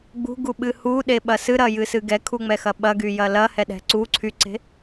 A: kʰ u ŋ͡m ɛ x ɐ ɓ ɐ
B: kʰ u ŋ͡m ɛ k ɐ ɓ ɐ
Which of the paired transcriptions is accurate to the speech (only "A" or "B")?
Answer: A